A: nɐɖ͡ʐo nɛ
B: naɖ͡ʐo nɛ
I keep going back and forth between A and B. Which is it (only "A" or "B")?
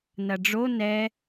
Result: A